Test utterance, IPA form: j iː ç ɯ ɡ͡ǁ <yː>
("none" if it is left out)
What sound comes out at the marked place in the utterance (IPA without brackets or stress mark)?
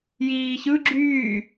yː